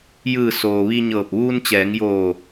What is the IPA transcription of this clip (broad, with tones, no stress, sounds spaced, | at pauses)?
j ɯː˧˩ s oː˩ ʋ i˧ ɲ ɤː˧˩ p̚ ʋ uː˧ n t͡ɕ ɛː˩˧ ŋ j oː˧˩